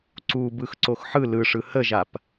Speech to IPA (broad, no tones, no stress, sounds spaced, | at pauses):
ǀ u b ɯ x ǀ o x ħ ɯ l ɯ ʂ ɯ h ə ʒ a p